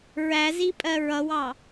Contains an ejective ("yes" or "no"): yes